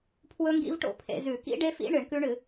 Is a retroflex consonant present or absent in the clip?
present